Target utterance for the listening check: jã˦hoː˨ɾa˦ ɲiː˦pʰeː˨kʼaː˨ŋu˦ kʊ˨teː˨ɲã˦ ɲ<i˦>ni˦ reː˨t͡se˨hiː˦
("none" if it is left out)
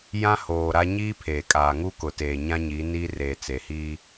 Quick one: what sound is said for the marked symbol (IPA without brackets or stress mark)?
i˨˦